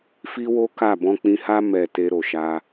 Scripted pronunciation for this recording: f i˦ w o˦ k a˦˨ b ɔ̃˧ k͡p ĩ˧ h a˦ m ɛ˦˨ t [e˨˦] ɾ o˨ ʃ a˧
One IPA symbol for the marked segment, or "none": e˧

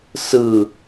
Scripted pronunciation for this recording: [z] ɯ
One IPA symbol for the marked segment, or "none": s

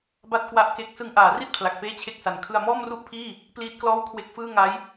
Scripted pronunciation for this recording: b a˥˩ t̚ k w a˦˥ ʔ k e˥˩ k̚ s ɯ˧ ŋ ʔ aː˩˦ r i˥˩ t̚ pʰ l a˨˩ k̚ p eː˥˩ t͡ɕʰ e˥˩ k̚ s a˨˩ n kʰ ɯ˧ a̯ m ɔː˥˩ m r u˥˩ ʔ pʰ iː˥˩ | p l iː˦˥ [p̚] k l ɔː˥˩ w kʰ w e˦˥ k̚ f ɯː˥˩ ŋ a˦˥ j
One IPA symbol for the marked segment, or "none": t̚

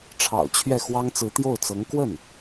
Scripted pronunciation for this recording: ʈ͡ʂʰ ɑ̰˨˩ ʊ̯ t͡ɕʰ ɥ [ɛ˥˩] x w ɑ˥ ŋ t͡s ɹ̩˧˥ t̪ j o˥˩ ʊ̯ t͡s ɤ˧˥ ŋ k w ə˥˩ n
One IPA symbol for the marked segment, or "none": ɛ˥˩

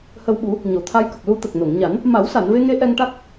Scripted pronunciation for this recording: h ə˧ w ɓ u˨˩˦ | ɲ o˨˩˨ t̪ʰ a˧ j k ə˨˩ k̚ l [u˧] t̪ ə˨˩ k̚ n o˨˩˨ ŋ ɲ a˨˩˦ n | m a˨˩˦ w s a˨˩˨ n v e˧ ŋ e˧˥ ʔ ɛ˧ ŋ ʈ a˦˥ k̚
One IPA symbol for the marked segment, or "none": u˧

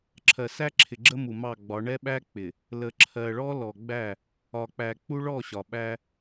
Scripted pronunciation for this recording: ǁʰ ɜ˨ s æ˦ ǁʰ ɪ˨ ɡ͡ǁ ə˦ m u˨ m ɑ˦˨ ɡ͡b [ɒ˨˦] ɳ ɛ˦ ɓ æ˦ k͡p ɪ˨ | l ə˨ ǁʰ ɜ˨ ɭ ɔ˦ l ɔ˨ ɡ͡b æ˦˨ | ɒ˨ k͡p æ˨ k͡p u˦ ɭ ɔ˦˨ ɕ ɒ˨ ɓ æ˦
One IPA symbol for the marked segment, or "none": ɒ˨˦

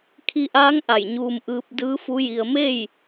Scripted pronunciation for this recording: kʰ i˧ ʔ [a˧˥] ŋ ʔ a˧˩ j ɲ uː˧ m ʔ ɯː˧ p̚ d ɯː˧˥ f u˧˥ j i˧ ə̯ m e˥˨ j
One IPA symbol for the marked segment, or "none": aː˧˥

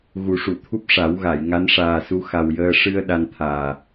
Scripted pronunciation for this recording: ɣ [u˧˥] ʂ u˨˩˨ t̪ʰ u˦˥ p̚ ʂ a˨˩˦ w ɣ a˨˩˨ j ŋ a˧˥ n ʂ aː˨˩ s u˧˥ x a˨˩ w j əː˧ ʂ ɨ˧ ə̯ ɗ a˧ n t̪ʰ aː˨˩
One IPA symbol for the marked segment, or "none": u˨˩˦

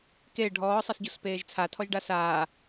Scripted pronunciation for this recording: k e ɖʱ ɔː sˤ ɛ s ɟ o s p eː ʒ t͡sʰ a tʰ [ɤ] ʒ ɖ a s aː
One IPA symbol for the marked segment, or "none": ɔ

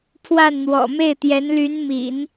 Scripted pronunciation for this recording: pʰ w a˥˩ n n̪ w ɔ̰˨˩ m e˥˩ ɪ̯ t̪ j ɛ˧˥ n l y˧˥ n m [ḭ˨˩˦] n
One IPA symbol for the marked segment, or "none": ḭ˨˩˦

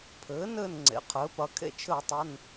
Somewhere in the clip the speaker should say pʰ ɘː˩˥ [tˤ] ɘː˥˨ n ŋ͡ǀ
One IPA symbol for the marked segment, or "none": n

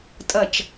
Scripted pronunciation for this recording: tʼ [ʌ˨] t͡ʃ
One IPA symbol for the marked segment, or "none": ʌ˨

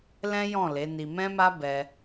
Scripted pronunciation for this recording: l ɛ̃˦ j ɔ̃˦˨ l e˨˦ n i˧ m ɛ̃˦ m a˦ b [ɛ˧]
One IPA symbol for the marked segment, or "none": ɛ˧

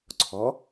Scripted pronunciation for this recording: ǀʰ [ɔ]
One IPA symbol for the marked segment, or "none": ɔ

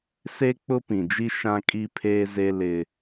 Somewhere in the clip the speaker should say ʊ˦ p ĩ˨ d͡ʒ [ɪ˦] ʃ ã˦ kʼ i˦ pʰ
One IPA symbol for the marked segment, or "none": i˦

